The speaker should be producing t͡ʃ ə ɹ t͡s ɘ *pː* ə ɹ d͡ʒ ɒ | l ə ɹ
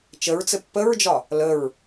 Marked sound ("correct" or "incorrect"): correct